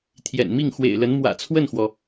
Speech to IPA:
t̪ʰ j ɛ̰˨˩ n m i˥˩ ŋ x w ḛ˨˩ ɪ̯ l ə˧˥ n m w ä̰˨˩ t͡sʰ w ə˥˩ n x w ɔ˩

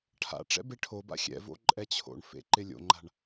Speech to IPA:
ʈʰ a̰ ʈ͡ʂ ɛ̰ b e ʈʰ o b a̰ xʲ ɛ̰ v o̰ ǃʼ ɛ t͡ɕʰ o̰ ɳ f ḛ ǃ ɪ lʲ o̰ ŋ͡ǃ a̤ ɳ

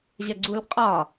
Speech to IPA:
ʑ ɐ ɡ͡ǀ u l qʼ ɒ

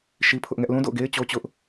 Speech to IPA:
ʃ i˦ pʰ ʊ˦ ʔ ŋ ɛ˦ ʔ l ũ˦ d o̰˦˨ ʊ̯ ɡ e˦ ɪ̯ t͡ɕ o˦ t͡ɕ ʊ˦ ʔ

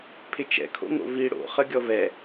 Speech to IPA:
pʰ ɪ t͡ʃ ɛ̰ kʰ o̰ ŋ o̰ v i ɽ o̰ χ ə ɡʲ ɔ v ɛ

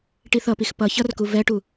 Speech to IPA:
ʈ i θ ʌ p i x p ʌ ç ʌ r k u v ɛ ʈ u

